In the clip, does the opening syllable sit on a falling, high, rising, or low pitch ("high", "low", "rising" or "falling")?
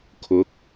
rising